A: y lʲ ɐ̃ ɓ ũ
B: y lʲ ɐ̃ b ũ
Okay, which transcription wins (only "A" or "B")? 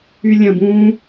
B